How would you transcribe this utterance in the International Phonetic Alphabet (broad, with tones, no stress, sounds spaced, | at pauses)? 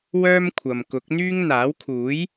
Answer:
w œː˥ m kʷʰ ɐ˨ m k ʊ˨˥ k̚ n̪ yː˥ ŋ n̪ aː˨˥ w kʰ uː˨˥ j